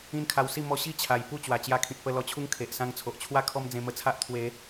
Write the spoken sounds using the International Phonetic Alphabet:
ĩ˦nkʰa˧wsi˥˧ mɔ˦ ɕi˥˧t͡ɕʰa˨˩j pu˥˧t͡ɕwa˨˩t͡ɕja˧kʰĩ˨t̚ pə˧ lɔ˧t͡ɕʰu˦ŋkʰe˨ʔ sã˧ŋt͡sʰo˨ʔt͡ɕʰwa˥˧ kʰɔ˦md͡zẽ˧mə˧t͡sʰa˦ʔ t̪ʰwe˨˦

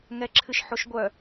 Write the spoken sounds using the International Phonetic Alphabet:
ŋɛǁʰɨʃħoʃɡʷœ

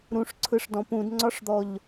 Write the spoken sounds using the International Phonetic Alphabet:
ɾũʂǀʰɯʂdɔ̃ pũdŋ͡ǀɒʂd̪ɔʎ

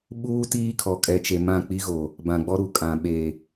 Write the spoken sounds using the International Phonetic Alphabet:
ɓuː˦ tiː˦kʰɔ˨ kʼɛ˨t͡ʃe˨ mã˦˨ k͡pi˦ɣo˨ | bã˨ɡ͡bɔ˦ɾu˨ kʼã˨ ɓe˨

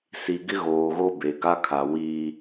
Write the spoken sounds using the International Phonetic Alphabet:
si˨ɡɪ˦ ɣoː˨ɣo˦be˨ ɡa˦kʰa˨ wi˦

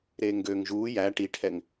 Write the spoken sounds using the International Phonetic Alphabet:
ɾeːŋɡøːŋʒuː jæ ʈiʈʰɛŋ

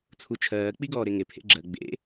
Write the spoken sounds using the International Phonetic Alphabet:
t͡sʰut͡ʃʰɜː k͡piɡɔːɾeŋe pʰḛɡ͡ǁɜ ɡ͡bḛ

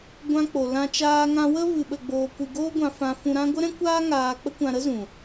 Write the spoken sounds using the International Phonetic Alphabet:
ɡʷã˧k͡po˨lã˧ t͡ʃaː˧ŋã˧wə˦ vɨ˧ɓə˧ɡ͡boː˧ kʷɨ˧ ɡoː˦ɡʷã˧fã˧ fũ˧ɾã˦ ɡʷə˦ɾɛ̃˦kʷaː˦ ŋaː˧ k͡pə˦kʷã˧ɾə˦zũ˨

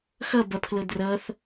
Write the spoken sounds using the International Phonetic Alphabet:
xʌ bɐpʰlɤdrʌθ

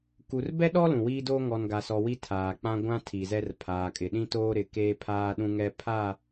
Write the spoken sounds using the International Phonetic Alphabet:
ku˨rbɛ˦ɗɔ˦ lũ˨wiː˦doː˦ ŋɔ˨nɡa˨sɔ˨ wi˦tʰaː˨k͡pã˦ ɡʷã˦ tʰi˨zɛ˦r pʰaː˨kʼɪ˨ɗĩ˦toː˦ ɾɪ˨ keː˦pʰaː˦ ɗũ˦ŋɛ˦ pʰa˦˨

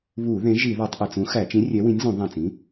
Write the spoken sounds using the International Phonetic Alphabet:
βu˧˩˧ðẽ˨˥ ʒi˧˩˧ðɑ˧˩˧tˤʔe˧˩t͡s ũ˨˥xæ˧˩˧ t͡ʃĩ˨˥rʲɛ˨˥wĩ˨˥nʲ zũ˧˩˧ðˤæ̃˧˩t͡sĩ˨˥

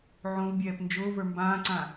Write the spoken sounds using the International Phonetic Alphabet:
ʕõvbʲɛːp nd͡ʒʊːvə˞ mbãːǀã

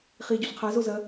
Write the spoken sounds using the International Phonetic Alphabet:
χie̯ɟoɬqʰa zozɐ

